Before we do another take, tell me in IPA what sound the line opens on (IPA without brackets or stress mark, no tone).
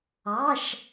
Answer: ɑ